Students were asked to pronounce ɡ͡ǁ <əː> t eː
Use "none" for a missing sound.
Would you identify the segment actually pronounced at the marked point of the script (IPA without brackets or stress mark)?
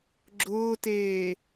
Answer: ʊː